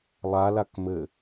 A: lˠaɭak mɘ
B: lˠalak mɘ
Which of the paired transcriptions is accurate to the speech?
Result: B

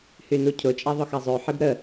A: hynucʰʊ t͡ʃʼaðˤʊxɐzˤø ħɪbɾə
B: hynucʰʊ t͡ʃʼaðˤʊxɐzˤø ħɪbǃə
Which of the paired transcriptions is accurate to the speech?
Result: A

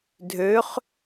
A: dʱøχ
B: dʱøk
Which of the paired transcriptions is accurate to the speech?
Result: A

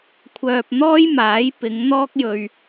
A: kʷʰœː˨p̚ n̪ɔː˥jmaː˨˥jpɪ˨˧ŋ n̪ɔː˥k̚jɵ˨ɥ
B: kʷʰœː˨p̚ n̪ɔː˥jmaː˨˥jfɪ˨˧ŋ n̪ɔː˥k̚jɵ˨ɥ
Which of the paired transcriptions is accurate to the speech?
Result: A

